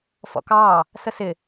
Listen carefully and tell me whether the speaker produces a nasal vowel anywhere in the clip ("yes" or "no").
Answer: no